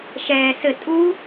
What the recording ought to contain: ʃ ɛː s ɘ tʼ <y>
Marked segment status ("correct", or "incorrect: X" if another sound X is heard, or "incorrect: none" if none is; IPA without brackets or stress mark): incorrect: u